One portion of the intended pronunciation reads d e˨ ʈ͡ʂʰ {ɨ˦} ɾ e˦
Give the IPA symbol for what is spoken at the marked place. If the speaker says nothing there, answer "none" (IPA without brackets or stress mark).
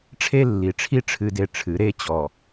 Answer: ɨ˨˦